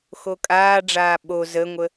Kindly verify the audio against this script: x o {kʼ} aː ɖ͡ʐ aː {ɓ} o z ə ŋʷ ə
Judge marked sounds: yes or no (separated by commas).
yes, yes